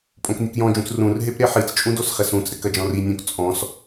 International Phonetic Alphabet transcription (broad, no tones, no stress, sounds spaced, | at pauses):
pʼ õ k nʲ ɨ k j ɔ̃ d͡ʒ ũ t͡s r ũ r ɦ e p ɾ e ħ i t͡s t͡ʃʼ ũ d o s χ ɛ s ũ t͡s ɾ ɘ k ɐ d͡ʒ ɔ̃ r i nʲ õ k t͡sʼ ɔ̃ s